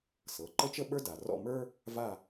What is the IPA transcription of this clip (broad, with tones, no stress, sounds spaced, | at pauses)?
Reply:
s ɤ˩˧˩ ǃ ə˥ t͡ʃ ə˥ ɓ ə˞˥ d a˩ r ɔ̰˥˧ m ə˞˥ | v a˥˧